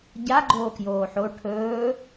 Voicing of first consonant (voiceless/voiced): voiced